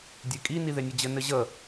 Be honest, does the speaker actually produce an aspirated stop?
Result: no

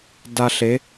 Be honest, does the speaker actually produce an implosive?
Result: no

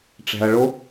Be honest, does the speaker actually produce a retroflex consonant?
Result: yes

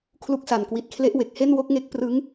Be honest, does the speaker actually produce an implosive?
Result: no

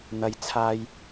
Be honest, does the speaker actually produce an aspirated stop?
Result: yes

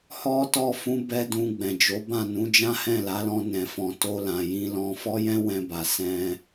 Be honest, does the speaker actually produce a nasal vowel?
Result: yes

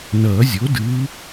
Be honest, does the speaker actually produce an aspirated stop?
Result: no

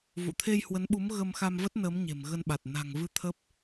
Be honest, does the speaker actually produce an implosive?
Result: yes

